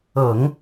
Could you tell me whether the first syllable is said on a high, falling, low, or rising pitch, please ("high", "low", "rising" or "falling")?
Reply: low